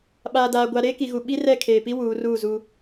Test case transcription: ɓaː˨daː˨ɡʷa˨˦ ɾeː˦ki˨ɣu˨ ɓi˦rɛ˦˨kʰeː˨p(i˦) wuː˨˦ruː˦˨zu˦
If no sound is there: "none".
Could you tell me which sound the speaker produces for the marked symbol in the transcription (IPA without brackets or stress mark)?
i˦